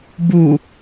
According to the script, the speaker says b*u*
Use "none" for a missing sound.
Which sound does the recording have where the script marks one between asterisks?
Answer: u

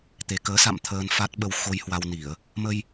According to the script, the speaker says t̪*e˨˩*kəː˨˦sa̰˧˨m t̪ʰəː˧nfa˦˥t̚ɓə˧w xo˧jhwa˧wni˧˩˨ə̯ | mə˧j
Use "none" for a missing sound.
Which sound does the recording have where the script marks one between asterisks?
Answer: e˨˩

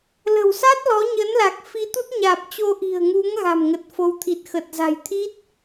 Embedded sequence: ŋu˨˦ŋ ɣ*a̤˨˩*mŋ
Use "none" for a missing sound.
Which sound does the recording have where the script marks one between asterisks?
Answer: a̤˨˩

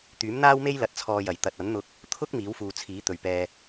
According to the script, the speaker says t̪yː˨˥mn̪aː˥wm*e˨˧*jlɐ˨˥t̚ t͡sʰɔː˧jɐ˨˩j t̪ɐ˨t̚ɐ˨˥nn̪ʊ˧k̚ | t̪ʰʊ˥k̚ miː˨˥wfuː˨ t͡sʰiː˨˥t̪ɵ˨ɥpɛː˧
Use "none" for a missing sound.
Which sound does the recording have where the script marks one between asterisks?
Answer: e˥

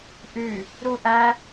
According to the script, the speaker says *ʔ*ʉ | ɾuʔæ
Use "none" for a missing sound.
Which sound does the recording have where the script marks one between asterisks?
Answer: ʔ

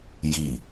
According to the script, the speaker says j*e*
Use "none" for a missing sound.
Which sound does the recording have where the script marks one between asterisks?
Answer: i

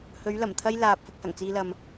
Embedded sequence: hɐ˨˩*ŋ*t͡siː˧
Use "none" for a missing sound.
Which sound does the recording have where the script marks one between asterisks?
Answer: ŋ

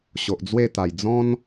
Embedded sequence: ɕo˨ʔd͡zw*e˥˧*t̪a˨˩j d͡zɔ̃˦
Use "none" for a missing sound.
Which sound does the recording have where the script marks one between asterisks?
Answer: e˥˧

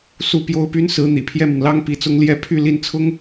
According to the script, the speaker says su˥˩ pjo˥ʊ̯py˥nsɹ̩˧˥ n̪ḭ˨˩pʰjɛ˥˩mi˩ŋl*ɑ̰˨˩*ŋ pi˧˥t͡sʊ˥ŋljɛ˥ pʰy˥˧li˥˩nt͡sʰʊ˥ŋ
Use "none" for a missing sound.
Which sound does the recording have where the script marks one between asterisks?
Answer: ɑ˥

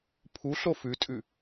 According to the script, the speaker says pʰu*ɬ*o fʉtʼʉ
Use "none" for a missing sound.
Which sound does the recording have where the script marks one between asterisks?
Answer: ɬ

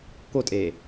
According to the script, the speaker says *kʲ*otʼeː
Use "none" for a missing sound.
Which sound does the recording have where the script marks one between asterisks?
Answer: k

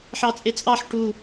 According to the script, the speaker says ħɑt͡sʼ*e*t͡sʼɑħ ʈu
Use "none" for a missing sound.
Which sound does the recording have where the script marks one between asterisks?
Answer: e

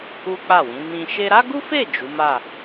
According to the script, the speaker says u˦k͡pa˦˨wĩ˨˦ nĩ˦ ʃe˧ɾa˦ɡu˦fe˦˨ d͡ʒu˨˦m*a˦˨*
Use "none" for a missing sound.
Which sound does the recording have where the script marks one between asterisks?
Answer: a˦˨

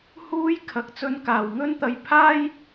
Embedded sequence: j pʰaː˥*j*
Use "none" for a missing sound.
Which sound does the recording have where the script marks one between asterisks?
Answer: j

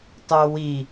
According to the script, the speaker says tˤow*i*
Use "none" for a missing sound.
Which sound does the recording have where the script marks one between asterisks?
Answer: i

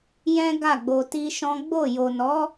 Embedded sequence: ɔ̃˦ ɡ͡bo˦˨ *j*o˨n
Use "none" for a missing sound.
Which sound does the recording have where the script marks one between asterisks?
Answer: j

